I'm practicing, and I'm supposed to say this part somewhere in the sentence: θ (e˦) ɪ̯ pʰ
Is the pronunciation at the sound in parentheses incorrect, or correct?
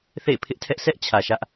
incorrect